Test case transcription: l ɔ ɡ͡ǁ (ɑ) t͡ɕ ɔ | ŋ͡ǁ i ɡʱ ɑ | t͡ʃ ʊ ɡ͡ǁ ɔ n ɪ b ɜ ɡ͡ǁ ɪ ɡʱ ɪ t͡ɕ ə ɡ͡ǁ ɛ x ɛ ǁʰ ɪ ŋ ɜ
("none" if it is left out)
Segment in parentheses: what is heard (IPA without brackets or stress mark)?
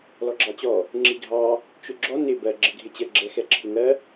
ɑ